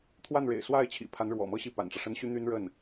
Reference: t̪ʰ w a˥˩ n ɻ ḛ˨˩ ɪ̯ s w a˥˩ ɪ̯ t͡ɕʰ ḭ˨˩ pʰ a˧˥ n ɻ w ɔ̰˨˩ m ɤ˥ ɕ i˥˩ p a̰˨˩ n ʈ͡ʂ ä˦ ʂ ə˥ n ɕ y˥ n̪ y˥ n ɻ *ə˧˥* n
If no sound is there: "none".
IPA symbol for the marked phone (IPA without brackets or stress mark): ə˥˩